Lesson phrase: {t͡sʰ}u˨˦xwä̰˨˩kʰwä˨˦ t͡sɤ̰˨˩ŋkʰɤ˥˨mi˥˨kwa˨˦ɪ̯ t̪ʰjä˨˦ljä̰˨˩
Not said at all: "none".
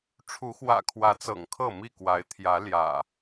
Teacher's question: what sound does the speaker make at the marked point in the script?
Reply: ʈ͡ʂʰ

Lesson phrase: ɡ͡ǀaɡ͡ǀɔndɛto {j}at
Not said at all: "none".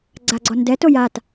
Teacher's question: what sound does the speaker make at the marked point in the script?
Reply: j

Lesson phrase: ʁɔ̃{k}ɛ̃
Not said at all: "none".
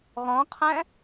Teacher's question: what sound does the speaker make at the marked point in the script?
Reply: qʰ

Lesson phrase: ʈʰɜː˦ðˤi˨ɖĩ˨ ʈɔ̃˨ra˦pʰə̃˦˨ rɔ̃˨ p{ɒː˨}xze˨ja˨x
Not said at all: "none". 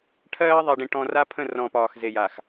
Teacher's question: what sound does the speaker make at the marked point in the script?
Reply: ɒː˨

